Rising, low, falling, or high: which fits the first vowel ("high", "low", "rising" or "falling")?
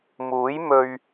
rising